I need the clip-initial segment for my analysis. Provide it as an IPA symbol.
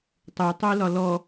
tˤ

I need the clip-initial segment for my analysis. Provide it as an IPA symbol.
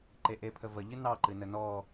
ǃ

